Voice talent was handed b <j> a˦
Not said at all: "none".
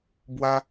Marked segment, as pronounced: w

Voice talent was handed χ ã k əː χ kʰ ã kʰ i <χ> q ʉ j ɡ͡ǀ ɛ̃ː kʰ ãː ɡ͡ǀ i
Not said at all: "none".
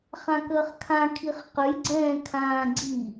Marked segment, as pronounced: χ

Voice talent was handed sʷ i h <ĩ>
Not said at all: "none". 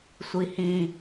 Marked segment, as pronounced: ĩ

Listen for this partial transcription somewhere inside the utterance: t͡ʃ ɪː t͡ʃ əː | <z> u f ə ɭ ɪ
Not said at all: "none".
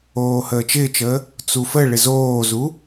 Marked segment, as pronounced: t͡s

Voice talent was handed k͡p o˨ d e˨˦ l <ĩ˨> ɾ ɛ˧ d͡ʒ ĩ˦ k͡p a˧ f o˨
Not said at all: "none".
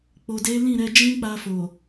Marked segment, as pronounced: ĩ˦˨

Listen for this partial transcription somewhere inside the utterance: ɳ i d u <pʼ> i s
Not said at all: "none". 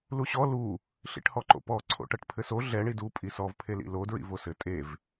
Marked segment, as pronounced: pʼ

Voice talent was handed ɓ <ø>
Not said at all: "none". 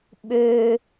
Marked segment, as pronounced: ø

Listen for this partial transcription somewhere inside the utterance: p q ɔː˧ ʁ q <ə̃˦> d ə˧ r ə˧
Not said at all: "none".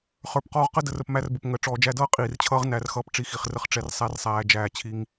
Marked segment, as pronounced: ə˦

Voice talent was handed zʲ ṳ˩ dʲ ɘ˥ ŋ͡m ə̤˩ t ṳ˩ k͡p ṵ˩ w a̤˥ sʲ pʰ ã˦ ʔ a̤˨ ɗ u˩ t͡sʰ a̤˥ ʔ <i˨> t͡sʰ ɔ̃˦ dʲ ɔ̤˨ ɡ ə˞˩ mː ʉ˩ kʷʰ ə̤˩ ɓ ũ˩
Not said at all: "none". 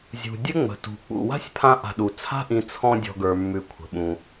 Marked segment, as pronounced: ĩ˨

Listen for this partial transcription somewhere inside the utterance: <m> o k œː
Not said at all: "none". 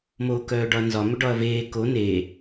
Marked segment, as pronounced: m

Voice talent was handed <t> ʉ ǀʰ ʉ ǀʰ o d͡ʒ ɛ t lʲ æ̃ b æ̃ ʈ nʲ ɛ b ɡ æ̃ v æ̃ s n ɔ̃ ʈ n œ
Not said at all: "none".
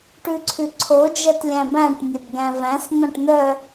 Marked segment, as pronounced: ʈ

